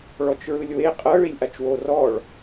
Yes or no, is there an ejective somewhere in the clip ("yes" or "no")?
yes